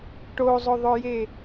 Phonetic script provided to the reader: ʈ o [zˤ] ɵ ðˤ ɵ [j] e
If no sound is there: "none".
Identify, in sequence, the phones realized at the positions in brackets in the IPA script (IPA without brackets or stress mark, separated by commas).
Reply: zˤ, j